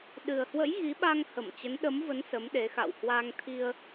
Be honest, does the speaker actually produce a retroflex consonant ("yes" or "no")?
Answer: no